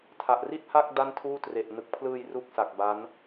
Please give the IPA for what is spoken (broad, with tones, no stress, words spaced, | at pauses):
tʰa˨˩ʔri˥˩t̚ha˥˩k̚ da˥˩ntʰuː˥˩ tre˨˩ʔnɯ˨˩k̚pʰlɯː˧j ru˦˥k̚sa˨˩k̚ ba˦˥n